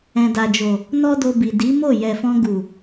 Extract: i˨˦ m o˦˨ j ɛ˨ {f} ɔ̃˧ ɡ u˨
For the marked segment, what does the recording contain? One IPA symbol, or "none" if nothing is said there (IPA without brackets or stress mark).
f